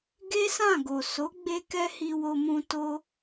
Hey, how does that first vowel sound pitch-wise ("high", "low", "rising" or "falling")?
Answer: high